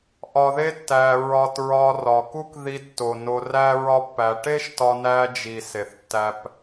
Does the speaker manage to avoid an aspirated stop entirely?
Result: yes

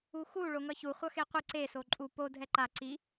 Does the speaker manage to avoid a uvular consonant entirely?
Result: no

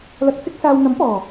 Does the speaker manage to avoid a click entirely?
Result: yes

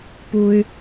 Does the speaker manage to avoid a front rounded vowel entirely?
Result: no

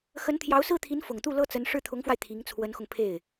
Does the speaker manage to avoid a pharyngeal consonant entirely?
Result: yes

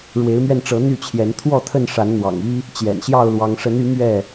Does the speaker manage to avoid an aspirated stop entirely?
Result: no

